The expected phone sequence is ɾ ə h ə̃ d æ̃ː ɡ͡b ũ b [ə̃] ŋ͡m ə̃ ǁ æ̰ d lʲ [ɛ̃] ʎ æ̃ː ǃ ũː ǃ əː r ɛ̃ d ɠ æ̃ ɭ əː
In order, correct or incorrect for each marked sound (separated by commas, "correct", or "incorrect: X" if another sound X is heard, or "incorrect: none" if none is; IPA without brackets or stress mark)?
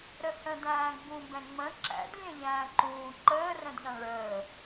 incorrect: ɛ̃, correct